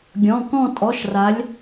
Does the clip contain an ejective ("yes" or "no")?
yes